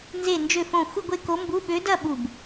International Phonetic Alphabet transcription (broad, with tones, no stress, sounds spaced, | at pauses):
n z e˥˧ n d͡ʒ ø˥˧ f õ˥˧ xʷ ɨ˥˧ ɡʷ e˥˧ k o˧˥ m b u˧˥˧ ɓ ø˧˥ d ɐ˥˧ ɓ u˧˩ b